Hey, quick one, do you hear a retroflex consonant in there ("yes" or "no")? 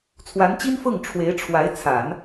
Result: yes